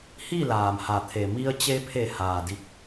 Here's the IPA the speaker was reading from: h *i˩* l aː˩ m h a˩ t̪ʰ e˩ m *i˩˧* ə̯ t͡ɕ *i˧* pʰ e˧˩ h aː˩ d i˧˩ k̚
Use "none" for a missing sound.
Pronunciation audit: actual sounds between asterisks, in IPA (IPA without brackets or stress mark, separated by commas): i˥˨, i˧, e˧